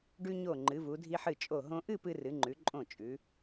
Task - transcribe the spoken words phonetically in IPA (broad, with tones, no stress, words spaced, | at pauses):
ɖʉ˧ɲo˧˩ ŋ͡ǃɨ˩˧vu˩˧dʱi˧ħɨ˧˩ t͡ʃʼo˧˩ ɦõ˧ʔɨ˥˧ pɨ˧rɨ˩˧ŋ͡ǃʉ˩˧ ǃʼõ˧˩ t͡ʃʼʉ˩˧